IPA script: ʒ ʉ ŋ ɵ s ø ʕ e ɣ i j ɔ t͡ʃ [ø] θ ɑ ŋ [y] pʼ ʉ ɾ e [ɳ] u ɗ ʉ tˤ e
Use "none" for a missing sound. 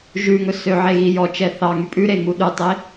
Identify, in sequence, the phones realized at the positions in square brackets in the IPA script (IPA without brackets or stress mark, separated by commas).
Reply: ɛ, y, ŋ